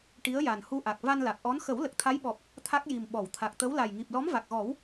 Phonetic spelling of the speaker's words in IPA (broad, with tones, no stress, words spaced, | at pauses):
ʈi˧˥ə̯ja˨˩nhu˧ʔa˨˩k̚ va˧nla˨˩k̚ʔɔ˧˥n xə˨˩˦w lə˨˩k̚t̪ʰa˧˥j ɓɔ˨˩p̚ | t̪ʰa˦˥k̚ji˨˩m ɓɔ˨˩˨wt̪ʰa˨˩k̚t̪ə˧˥w la˨˩jŋi˨˩p̚ lɔ˧˥mva˨˩k̚ɣɔ˨˩˦w